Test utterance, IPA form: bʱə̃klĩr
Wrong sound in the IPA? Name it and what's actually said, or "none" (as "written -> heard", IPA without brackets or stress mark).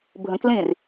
none